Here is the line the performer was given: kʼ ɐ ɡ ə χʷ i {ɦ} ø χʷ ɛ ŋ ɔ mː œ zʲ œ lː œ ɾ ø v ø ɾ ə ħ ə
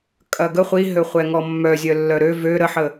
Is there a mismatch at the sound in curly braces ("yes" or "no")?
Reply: no